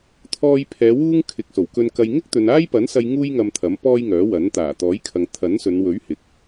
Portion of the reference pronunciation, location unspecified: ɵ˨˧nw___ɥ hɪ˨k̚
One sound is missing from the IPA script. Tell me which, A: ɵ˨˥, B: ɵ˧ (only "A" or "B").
A